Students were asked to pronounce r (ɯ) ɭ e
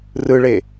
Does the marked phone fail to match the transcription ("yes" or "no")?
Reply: no